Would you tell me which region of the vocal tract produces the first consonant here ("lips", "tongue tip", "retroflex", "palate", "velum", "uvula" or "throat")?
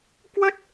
velum